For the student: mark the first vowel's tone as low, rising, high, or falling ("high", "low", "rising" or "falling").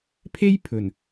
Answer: high